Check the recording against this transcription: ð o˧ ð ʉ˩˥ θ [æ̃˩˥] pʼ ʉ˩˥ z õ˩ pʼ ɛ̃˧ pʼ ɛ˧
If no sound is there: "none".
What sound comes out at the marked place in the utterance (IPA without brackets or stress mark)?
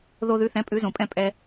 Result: ɛ̃˩˥